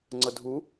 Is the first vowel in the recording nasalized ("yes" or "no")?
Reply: no